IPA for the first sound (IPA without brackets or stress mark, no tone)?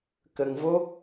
k